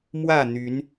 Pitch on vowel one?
falling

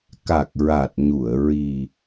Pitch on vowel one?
low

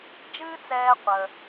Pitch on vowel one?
high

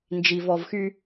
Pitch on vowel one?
low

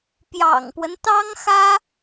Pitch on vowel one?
low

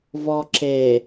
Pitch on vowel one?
low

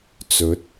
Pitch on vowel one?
rising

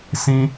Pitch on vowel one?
high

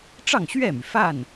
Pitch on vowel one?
falling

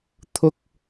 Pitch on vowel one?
high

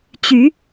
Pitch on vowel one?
rising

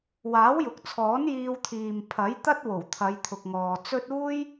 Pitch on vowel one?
rising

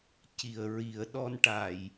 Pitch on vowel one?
low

